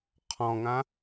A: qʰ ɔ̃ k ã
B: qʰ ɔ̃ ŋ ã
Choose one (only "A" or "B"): B